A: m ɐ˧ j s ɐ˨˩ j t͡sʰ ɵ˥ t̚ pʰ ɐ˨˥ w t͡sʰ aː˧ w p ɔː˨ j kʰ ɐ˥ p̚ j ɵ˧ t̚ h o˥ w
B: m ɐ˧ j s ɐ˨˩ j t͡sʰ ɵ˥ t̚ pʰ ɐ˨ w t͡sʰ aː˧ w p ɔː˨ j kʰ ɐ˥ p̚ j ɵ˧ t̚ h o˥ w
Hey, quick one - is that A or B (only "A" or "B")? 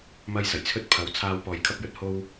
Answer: A